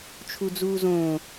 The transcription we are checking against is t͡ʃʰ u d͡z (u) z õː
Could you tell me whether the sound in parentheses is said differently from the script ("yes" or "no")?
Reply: yes